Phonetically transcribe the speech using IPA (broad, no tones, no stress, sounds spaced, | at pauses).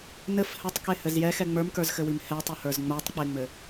n ɘ f h ɘ tˤ k e h ɘ z j ɛ x ɛ ŋ͡m ə˞ m k ə˞ z x ɘ w i m h ɛ tˤ ɘ h ə˞ z ŋ͡m ə˞ tˤ k͡p e ŋ͡m ɘ